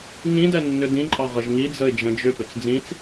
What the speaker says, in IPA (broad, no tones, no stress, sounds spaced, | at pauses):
ŋ ĩ d ɛ nː ʏ d ĩ ǃʼ ɑ ʁ ə ʒ ŋ i d͡z ə ɪ̯ d͡ʒ ə̃ d͡ʒ ʏ p ʏ t͡s d͡z ĩ t͡s